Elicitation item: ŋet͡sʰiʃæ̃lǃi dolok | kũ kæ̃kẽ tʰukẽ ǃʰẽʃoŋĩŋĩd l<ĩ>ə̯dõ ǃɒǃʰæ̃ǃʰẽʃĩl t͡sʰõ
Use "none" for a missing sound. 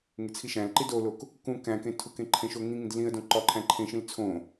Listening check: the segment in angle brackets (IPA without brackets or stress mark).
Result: ĩ